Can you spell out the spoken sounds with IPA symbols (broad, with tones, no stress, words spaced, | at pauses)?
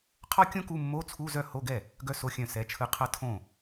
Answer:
qʰɔ˥ kʲõ˥ku˧˥˧ mːo˧˥˧t͡sʰu˧˥˧zœ˥˩ ho˧˥˧ɡɛ˥˩ | ɡœ˥so˧˥˧xʲœ̃˥˩ sɛ˧˥˧t͡ʃʰɯ˥ qʰʌ˥ tʰõ˥˩